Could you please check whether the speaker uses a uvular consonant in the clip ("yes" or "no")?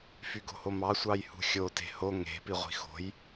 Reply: yes